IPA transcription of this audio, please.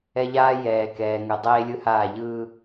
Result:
ɛ˦ ʎ aː˦ j ɛː˨ k ɛː˨ ŋ ɯ˨ dˤ eː˦ lʲ ɯ˦ h aː˦˨ ʎ ɯː˦

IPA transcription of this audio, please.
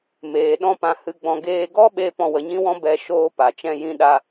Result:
m eː˨ ɗ ɔ̃˦ p ã˧ h ɨ˧ ɡ͡b ɔ̃˧ ɡ eː˦ ɡ ɔ˦ ɓ e˧ p ɔ̃˧ w ə˨˦ ɲ ĩ˦ w ɔ̃˦ b ɛ˦ ʃ oː˦ p a˨ t͡ʃ ɛ̃˦ j ĩ˦ ɗ a˦

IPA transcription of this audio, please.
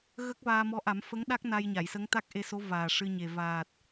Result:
ɣ ə˦˥ k̚ v aː˧ m ɔ˧˥ ʔ a˨˩˦ m f ə˧˥ ŋ ɗ a˦˥ k̚ n a˧ j ɲ a˨˩˨ j s ə˧˥ ŋ t̪ a˦˥ k̚ ʔ e˧ s o˧˥ v aː˨˩ ʂ ɨ˧ ɲ e˨˩ v aː˨˩ t̚

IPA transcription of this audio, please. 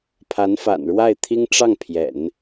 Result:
pʰ a˧˥ n f a̰˨˩ n ɻ w a˥˩ ɪ̯ t̪ʰ i˥ ŋ ʈ͡ʂ ɑ˥˩ ŋ pʰ j ɛ̰˨˩˦ n

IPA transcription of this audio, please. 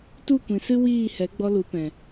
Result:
t u˦˨ kʷ ĩ˨ s ɨ˦ w iː˦˨ h ɛ˨˦ ɡ͡b ɔ˧ l u˨˦ p ɛ̃˨

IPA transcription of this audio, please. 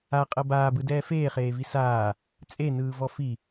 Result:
a qʼ ɤ b aː b ɯ d ɛː f eː χ eː v i s aː | t͡sʼ e n ɯː v ɔ f i

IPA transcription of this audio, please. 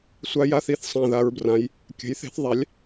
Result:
sʷ a˦˥ j a˥˧ θ i˦˥ θ sˤ ã˥˧ ð a˦˥ ɹ b r ã˦˥ j | kʲ ə̤˨˥ j θ e̤˨˥ θ ðˤ a˨˥ lʲ

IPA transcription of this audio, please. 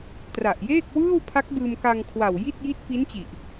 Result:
t r a˨˩ ʔ j eː˥˩ k̚ w ɯː˥˩ w pʰ a˦˥ k̚ b ɯː˧ m k a˧ ŋ kʰ w a˨˩ w j i˥˩ t̚ j i˦˥ t̚ p i˦˥ n t͡ɕ i˨˩ ʔ

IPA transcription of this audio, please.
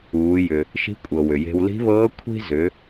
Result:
uː˩˧ j ʏ˩ | ʃ i̤˧˥ kʷʼ ɤ˩ w ʏ˩ j e̤˧ w l i̤˧˥ β ɤː˧˥ kʷʰ i̤˥ z ʏ˩˧

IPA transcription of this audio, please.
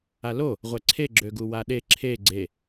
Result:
a l o | ʁʷ ɛ ǀʰ e ɡ͡ǁ ø ɡ u w a ɗ e ǁʰ e ɡ͡ǀ e

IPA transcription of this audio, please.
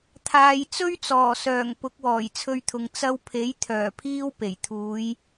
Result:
t̪ʰ aː˨ j t͡s ɵ˥ ɥ t͡s ɔː˨˩ s œː˨˩ ŋ p ʊ˨˥ k̚ w ɔː˨˩ j t͡sʰ ɵ˧ ɥ t̪ʰ ʊ˨ ŋ t͡s ɐ˧ w pʰ e˨˥ j t̪ʰ œː˨˩ pʰ iː˧ w p e˨˩ j t̪ʰ uː˨˧ j

